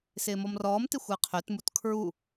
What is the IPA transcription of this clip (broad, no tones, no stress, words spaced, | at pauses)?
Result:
sɪːmɔmrɔːmtɪ xʷɪːqʰøtmut kʰɹu